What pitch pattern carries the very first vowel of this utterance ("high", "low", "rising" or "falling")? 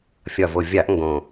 low